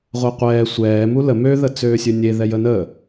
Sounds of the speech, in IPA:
ʁʷ ɛ qʷ ɛː sʷ ɛː m u l ə m ø ð ə t͡s øː sʲ ø nʲ e ð ɛ j ə n əː

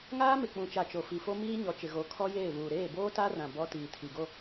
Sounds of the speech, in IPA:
ŋ aː˦ m ɪ˨ k͡p ũ˨ t͡ʃ a˨ t͡ʃ o˨ f i˨ f o˦ m iː˦ ɲ ɔ˨ t͡ʃ ɪ˨ ɣ o˨˦ kʰ ɔ˦ j eː˦˨ β uː˨ ɾ eː˦˨ b oː˦ t a˦ r ã˨ b ɔ˦ t iː˨ tʰ i˨ ɡ o˦

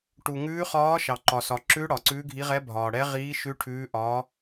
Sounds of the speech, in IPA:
ʈ u˨ ŋ ʉː˧˥ χ ɒː˧˥ ʃ ɑ˨ ǃ ɒ˨ s ɒ˨ ǁ ʉ˧˥ ɽ ɒ˨ ǀ ʉː˧˥ ɡʱ i˧˥ ʁ ɛ˧˥ bʱ ɒː˨ ɽ ɛ˧˥ ʁ iː˧˥ ʃ ʉ˧˥ ʈʰ ʉː˧˥ ʔ ɒ˧˥

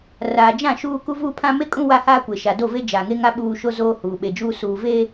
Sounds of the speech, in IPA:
r aː˨ d͡ʒ ã˦˨ ʃ uː˦ k u˦ v uː˦ pʰ ã˦ m e˦ kʼ ũ˦ w a˦ h aː˦ kʷ e˨ ʃ a˨ d o˦˨ v e˦ d͡ʒ aː˨ ŋ e˦ ŋ a˦ ɓ uː˦ ʃ o˦ z oː˦ h uː˨ ɓ e˨ d͡ʒ uː˦ s uː˨ v e˦

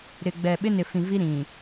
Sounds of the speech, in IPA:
ɾ ɪ˨ ɡ͡b ɛ˨ ɓ ɪ˦ n ɪ˨ f ĩ˨ v i˦ ɾ ĩ˨

